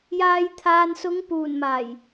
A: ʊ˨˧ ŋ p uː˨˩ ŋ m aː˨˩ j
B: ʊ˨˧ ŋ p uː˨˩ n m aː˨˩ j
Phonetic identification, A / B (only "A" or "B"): B